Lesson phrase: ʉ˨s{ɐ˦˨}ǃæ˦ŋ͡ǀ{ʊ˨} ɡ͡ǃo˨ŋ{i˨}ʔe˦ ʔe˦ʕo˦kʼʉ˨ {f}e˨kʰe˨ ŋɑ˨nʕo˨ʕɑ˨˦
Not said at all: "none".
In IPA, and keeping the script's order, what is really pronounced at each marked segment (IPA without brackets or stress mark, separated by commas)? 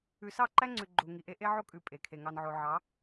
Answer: ɑ˦˨, ʉ˨, i˨, pʼ